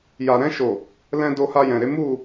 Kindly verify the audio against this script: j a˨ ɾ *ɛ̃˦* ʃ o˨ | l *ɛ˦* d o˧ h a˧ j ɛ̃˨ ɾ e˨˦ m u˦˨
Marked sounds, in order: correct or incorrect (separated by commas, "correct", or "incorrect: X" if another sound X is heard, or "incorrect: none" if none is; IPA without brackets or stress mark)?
incorrect: ɛ̃˧, incorrect: ɛ̃˦